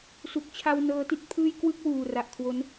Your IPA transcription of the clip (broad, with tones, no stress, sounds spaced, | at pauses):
s u˨˩ k̚ t͡ɕʰ a˧ w n ɤː˦˥ t i˦˥ t̚ pʰ ɯː˥˩ j k w ɯ˥˩ k̚ w uː˨˩ r a˨˩ ʔ kʰ w o˦˥ n